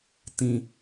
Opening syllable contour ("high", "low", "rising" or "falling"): low